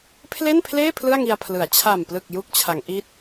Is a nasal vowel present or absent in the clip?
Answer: absent